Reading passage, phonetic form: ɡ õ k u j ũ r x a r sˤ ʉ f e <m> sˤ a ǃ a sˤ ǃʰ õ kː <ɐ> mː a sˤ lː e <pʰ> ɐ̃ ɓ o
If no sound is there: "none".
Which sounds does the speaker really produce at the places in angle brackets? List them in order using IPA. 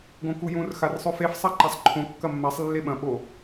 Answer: f, ɐ, ɓ

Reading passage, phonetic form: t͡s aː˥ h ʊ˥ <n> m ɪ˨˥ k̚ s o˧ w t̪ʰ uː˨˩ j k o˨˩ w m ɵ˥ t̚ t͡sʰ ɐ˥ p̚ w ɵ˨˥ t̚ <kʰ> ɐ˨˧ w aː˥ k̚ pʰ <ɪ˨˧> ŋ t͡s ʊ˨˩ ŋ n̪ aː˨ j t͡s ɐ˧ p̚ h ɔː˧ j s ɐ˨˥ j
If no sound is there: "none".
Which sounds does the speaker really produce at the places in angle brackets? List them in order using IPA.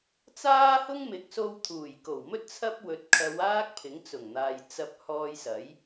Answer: ŋ, kʰ, ɪ˨˥

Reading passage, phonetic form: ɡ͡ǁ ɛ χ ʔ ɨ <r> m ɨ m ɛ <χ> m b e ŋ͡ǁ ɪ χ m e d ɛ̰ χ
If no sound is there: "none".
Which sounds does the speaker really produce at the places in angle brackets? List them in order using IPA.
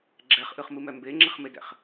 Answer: χ, none

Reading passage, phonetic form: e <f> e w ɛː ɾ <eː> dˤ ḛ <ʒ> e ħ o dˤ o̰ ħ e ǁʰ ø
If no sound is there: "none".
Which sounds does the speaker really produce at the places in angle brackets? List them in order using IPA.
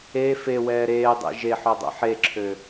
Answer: f, eː, ʒ

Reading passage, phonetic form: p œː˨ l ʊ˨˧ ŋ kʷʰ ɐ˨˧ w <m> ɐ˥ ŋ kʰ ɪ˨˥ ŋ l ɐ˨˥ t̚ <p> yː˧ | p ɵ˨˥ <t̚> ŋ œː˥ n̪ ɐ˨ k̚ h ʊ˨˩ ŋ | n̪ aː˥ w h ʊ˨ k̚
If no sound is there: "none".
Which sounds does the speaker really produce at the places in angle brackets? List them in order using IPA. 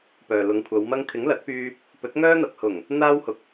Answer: m, p, t̚

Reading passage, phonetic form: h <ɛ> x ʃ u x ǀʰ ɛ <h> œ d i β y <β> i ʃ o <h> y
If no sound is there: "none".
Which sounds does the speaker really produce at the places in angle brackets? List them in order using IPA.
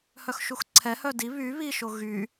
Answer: œ, h, β, ɣ

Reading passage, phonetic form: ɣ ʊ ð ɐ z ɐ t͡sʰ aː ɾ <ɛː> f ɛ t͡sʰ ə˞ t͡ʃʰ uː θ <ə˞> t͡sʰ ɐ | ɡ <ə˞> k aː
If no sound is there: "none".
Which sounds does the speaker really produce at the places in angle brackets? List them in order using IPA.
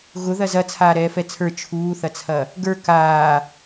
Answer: ɛː, ɐ, ə˞

